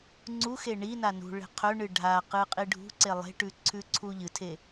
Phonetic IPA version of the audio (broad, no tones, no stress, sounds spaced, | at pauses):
ŋ͡ǀ u x e ɳ i n a n ṳ ɭ e̤ qʰ ɵ ɳ ɨ ɖʱ a q ɨ qʼ i ɖʱ ṳ ǀ e lˠ e̤ ʈ ʉ ǀʰ ʉ ǀʰ u ʎ ɨ tʰ e